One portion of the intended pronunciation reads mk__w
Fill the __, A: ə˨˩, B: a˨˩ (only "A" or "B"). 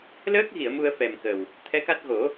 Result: A